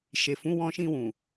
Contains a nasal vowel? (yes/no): yes